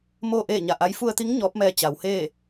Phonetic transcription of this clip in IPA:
moː˥˨ʔeː˥˨ɲa˧˩ʔa˧˥j fu˧ə̯t̪i˧˥ŋ ɲɔː˧˥p̚mɛː˧ t͡ɕa˩wheː˥˨

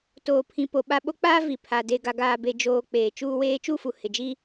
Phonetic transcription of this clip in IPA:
toː˨pʰĩ˨ po˨ɓa˦˨ ɓo˦k͡paː˦ vi˨pʰa˨ de˨ɡa˨ɡaː˨be˨ d͡ʒoː˨ k͡peː˨t͡ʃuː˦weː˦ t͡ʃu˦˨fu˨ hɪ˨d͡ʒi˦

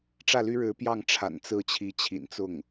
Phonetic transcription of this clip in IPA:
ʈ͡ʂä˥˩ly˥ɻɻ̩˧˥pjɑ˥˩ŋ ʈ͡ʂʰa̰˨˩nt͡sɹ̩˥˩ t͡ɕʰi˧˥t͡ɕʰḭ˨˩nt͡sʊ˥˩ŋ

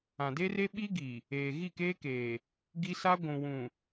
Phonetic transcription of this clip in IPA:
ã˨de˦re˦ ɓi˦ɡi˨ | eː˨ ɣi˦˨keː˦keː˨ | ɡi˦sa˦ ɡʷũ˨wũ˨

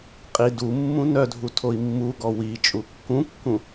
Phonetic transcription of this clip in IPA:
qʼi dumːũ nœdʱu tʰoi̯mːuɡɔ wi t͡ʃʼukːũkːũ

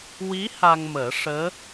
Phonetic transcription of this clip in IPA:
wi˧˥ ha˧ŋməː˨˩˦ʂəː˧˥

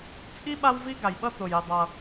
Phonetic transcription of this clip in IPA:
t͡sʼi˥ ɓa˥wvi˥ɡa˩jɓʌ˥ to˩ji˩ dˤʌ˩

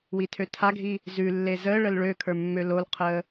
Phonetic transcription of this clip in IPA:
witʰøtʰaɡʱi | zʉlːe zəɭəl ɭøkʰə˞ mːølolqʰəː

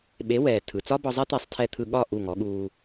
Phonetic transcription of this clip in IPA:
ɓe˩˥wɛː˩ tʰɯ˩t͡sɒ˥bɒ˧zˤɛ˥ t̪e˧sˤtʰɛ˧t̪ʰɯ˧ ɠɒ˥˩ ʔu˥˩ŋɔ˩˥ɠuː˧

